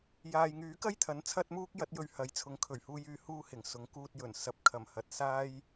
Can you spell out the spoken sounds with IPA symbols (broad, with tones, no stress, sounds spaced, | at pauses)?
j aː˨ j ŋ yː˨˥ k ɐ˥ j t̪ʰ ɐ˨˥ n t͡sʰ ɐ˥ t̚ m uː˥ k̚ j ɐ˨˥ t̚ j ɵ˧ ɥ h ɐ˨ j t͡sʰ ʊ˨˥ ŋ kʰ ɵ˨˩ ɥ h uː˧ j yː˧ h uː˧ h ɪ˨˩ ŋ s ʊ˨˥ ŋ k uː˧ t̚ j ɵ˨˩ n s ɐ˨ p̚ kʰ ɐ˨˩ m h ɐ˨ t̚ s aː˥ j